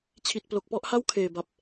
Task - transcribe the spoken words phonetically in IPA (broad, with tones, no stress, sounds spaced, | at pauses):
t͡ɕʰ i˨˩ t̚ p l o˨˩ k̚ p ɔ˥˩ ʔ h a˥˩ w kʰ eː˨˩ b a˨˩ p̚